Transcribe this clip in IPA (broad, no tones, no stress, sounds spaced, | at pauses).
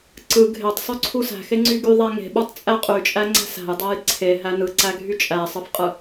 ǀ ɯ ɡʱ e tˤ sˤ y ǀʰ u s æ̤ x e ŋ͡ǀ y ɡ y ðˤ æ ŋ e̤ ɓ u tˤ t͡sʼ æ qʼ y t͡ʃʼ æ ŋ͡ǀ æ̤ s æ̤ j dˤ æ j ǀʰ e ɦ æ n ɯ ǀ æ ɡʱ y t͡ʃʼ æ sˤ ɯ f qʼ ɯ